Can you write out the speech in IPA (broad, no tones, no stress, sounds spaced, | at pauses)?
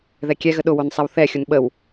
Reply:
ð ɛ kʲ ɛ ɣ ə ɗ ʊ w o n sˤ ɛ w θ ɛ xʲ ʊ n ɓ ə w